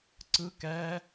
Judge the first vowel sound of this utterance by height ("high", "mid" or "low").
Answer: high